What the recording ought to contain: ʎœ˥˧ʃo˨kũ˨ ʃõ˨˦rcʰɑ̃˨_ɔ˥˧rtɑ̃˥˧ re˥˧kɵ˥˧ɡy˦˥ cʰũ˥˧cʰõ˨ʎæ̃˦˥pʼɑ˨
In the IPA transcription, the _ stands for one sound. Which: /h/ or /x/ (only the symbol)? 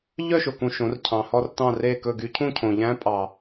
h